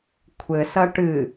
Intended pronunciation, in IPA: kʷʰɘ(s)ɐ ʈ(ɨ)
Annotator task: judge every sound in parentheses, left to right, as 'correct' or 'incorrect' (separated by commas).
correct, correct